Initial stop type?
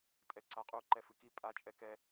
ejective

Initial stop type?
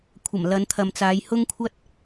aspirated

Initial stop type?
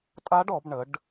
ejective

